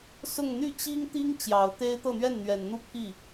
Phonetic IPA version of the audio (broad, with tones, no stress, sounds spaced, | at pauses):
s ʊ˥˧ ŋ n̪ y˥˩ t͡ɕ i˥ ŋ t̪ i˥ ŋ t͡ɕ j ɑ˨˩ ʊ̯ t̪ e˥ ɪ̯ t̪ ɤ˥˧ n̪ ɥ ɛ˥˩ n n̪ ɥ ɛ˨˩ n n̪ u˥˧ pʰ i˥˩